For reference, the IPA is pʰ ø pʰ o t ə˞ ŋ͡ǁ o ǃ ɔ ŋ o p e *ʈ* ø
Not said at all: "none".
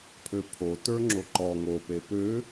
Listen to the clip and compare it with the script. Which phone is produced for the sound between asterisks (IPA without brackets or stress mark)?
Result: p